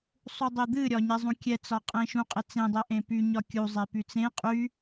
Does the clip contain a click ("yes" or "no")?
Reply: no